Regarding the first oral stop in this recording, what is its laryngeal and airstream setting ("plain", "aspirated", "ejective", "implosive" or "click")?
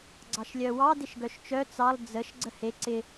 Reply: click